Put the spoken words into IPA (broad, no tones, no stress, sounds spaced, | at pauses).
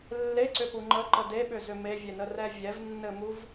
lː e ǀ ʏ p u ŋ͡ǃ ə ǃ ə d e ɓ ʏ z ʏ m e vʲ e n ə r ɛ vʲ ɛ v nː ɘ m u v